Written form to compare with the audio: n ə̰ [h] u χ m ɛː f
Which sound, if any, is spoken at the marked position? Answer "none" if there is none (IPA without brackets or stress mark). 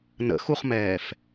x